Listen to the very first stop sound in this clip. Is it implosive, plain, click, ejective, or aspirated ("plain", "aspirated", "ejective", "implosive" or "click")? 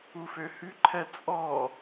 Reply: click